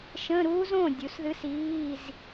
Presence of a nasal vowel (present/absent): present